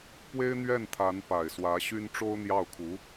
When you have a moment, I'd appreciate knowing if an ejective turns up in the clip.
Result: no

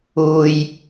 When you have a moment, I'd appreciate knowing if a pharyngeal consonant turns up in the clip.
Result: no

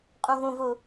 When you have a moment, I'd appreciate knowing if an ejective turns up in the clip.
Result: yes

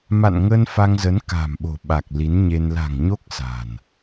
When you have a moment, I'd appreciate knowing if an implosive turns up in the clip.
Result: yes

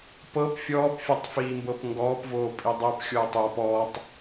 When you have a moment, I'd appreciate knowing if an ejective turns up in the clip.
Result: yes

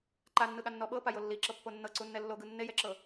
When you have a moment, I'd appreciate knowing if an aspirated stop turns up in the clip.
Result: no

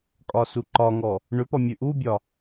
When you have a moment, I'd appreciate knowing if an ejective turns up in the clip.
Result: yes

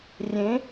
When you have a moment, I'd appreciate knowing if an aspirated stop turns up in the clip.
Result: no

